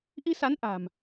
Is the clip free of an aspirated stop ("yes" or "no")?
yes